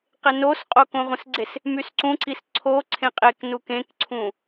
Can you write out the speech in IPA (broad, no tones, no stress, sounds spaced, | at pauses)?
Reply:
q e n o s qʼ o k õ ʁʷ ə̃ s ɡ͡ǀ e s | m y s ǀ ũ ǀ i s ǀʰ o ǀʰ ẽ qʼ e k n u k ẽ k ǀʰ ũ